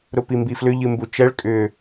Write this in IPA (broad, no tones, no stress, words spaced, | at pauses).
ɾʊpimbiflʏ ʎɨmbut͡ʃɛɭ kʼʏ